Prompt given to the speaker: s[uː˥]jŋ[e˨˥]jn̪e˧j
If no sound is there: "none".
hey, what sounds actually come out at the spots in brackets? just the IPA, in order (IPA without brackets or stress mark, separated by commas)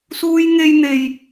uː˥, e˥